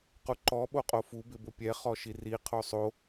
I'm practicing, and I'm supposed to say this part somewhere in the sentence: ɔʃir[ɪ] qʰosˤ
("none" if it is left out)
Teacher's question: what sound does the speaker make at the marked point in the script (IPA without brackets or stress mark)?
i